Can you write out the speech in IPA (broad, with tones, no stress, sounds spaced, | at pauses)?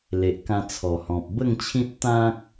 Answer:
l e˨ ʔ k ã˧ t͡sʰ ɔ˨˩ h ɔ̃˨ p̚ b ə˥˧ ŋ t͡ɕʰ ĩ˦ t̚ t̪ ã˦ k̚